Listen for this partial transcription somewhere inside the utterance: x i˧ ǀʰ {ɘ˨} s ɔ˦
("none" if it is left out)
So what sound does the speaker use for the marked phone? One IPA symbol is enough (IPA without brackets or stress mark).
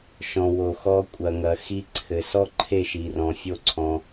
ɘ˨